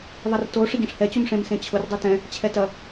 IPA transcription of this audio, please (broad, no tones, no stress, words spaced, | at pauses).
ðˤɐrto ʂɪɟɐ̃ʂhɛ t͡ɕumʂẽm sẽt͡ɕʰʊr dˤutɛ̃ | t͡ɕʰɛtɐ